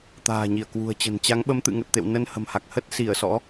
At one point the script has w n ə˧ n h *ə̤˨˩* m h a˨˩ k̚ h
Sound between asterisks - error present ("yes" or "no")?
no